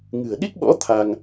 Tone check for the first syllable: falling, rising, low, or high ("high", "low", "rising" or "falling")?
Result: low